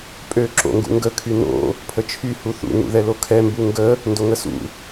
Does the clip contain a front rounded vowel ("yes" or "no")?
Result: yes